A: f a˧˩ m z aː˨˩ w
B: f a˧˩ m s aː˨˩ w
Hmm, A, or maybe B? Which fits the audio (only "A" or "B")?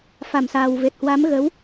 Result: B